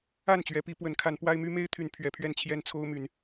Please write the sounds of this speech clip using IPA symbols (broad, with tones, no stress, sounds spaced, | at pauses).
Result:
a˥˨ n t͡ɕ ɥ ɛ˨˦ p i˨˦ p w ə˨˦ n kʰ a˨˦ n p w a˦ ɪ̯ m y˦ m e˦ ɪ̯ t̪ʰ y˨˦ n pʰ ɥ ɛ˨˦ pʰ ɥ ɛ˥˨ n t͡ɕʰ j ɛ˦ n t͡sʰ o˦ ʊ̯ m y˨˦ n